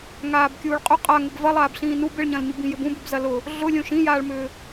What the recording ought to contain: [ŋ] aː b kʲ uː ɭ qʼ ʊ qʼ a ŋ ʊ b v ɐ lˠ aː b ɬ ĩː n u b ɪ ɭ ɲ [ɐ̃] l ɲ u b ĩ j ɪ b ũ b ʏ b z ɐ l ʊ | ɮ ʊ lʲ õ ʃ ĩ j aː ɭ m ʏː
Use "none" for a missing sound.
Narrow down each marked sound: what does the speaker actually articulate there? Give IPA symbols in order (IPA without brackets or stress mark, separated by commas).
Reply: ŋ, ɐ̃